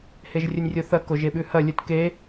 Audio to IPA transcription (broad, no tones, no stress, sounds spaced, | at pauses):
h e ʒ rʲ ɵ nʲ rʲ o θ ɐ k o ʒ e ɓ ʉ h ɐ lʲ ɵ t k e